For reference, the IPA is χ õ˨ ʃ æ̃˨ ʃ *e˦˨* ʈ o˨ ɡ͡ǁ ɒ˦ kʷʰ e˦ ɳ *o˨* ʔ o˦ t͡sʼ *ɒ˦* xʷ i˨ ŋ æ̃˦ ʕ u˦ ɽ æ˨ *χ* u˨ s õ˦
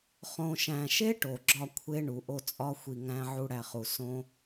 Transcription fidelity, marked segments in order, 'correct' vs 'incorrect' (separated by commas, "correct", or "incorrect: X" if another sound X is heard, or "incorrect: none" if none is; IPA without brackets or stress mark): incorrect: e˦, incorrect: u˨, correct, correct